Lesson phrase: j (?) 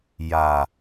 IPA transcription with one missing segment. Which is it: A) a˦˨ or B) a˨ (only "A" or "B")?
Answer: B